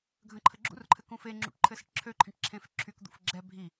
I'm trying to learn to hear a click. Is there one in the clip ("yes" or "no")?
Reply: yes